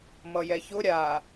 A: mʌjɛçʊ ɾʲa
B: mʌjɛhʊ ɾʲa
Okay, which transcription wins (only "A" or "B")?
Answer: A